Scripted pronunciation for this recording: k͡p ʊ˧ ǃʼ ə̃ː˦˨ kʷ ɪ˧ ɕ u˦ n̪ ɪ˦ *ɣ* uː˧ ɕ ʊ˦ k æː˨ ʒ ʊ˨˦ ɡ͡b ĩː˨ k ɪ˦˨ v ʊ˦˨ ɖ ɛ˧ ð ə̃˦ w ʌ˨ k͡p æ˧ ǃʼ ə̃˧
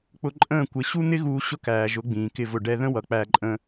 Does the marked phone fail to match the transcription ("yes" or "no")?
no